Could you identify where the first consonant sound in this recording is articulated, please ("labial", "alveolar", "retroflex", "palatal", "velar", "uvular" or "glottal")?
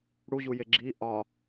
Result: retroflex